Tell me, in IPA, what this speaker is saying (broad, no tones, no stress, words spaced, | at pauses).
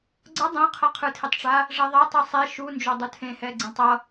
ɡ͡ǀʌ dˤẽ qʰʌqʰɯtʰitˤʈ͡ʂa | ʐɛðˤɛ tˤɯsˤe ʃund͡ʒodˤu tʰẽhɛ ɡ͡ǀẽtˤʌ